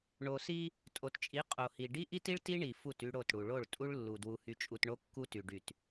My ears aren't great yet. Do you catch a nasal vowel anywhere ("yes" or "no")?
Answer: no